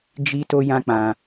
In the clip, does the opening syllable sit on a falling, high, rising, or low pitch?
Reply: high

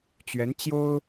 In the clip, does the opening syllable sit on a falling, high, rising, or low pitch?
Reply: rising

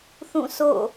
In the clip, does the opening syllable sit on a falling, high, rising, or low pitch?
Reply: falling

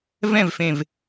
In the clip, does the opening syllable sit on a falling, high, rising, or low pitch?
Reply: falling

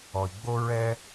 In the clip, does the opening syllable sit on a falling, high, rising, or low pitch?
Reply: low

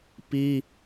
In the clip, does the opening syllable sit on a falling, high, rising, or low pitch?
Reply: high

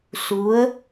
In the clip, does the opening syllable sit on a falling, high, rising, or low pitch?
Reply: rising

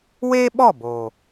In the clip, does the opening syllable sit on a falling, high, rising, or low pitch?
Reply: high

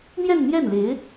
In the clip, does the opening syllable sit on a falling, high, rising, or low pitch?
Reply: falling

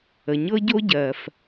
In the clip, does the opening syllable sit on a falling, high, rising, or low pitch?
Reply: low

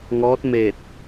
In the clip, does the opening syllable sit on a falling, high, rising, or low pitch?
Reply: rising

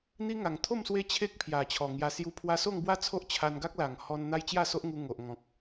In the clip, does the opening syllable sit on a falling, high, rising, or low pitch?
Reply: high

